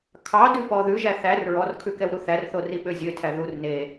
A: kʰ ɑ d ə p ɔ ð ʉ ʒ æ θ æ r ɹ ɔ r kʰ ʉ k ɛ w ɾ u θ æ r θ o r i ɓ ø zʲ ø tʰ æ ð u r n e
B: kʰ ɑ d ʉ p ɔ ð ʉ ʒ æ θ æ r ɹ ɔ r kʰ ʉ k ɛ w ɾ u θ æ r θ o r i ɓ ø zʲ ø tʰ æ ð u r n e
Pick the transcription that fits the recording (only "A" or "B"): B